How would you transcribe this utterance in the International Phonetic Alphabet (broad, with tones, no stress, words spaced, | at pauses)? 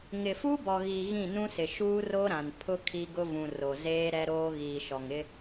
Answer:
ŋɪ˨fu˦bɔ˨ɣi˨ ɣĩ˦˨nũ˦sɪ˨ ʃuː˦ro˦ɾã˨n pʰʊ˦ kʰi˦ɡʊ˦vũ˨ ro˨zeː˦ ɾɛ˦ɾoː˦ ɣiː˨ʃɔ˨ŋ ɪ˦